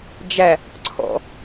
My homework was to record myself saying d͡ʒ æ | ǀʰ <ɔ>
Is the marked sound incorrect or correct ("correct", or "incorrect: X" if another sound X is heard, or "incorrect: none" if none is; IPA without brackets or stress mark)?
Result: incorrect: ɔ̰